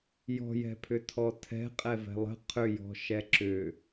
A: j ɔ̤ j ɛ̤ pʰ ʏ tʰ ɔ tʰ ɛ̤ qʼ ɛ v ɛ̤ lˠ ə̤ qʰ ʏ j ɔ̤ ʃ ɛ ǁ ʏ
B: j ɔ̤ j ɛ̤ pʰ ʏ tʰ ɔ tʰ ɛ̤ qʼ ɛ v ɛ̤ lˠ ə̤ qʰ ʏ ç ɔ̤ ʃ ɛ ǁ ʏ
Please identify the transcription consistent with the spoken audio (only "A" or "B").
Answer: A